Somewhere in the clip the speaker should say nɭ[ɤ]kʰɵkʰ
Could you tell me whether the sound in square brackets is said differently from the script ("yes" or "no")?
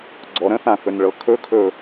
no